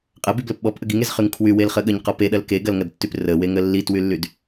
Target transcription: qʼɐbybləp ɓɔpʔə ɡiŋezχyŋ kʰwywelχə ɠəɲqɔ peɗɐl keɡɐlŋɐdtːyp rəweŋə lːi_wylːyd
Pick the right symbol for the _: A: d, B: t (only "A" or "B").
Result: B